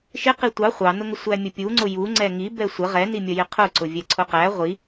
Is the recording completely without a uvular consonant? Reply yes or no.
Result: no